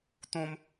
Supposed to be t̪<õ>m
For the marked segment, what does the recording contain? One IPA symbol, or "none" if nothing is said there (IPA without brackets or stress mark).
õ